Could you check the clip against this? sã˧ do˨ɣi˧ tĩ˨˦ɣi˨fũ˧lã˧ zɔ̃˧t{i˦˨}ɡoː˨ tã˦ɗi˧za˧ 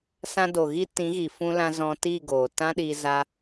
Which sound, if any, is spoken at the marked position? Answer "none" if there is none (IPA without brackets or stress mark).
i˦˨